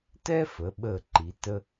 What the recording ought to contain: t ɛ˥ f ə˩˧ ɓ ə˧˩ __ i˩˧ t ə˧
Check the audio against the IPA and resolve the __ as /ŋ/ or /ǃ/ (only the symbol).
ǃ